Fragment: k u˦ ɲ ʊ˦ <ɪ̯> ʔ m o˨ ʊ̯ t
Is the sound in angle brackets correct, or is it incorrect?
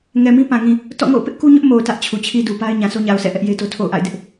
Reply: incorrect